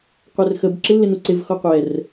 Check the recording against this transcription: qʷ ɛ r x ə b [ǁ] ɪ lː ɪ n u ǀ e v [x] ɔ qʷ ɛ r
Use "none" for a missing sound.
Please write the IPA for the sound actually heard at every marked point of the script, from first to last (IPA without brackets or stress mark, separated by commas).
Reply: ǁ, x